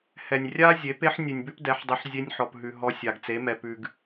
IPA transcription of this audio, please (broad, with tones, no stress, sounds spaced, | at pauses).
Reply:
h ɛ˨ nʲ rʲ a˦ zʲ e˨˦ p e˦ ħ nʲ ʉ˨ nʲ b ʉ˦ p d ɛ˨˦ ħ dˤ e˧ ħ zʲ e˧ nʲ ħ ɔ˨ p ɦ ʉ˨ ɦ ɔ˧ sʲ a˨ ɡ t͡s e˨˦ m ɛ˨ p ʉ˨ ɡ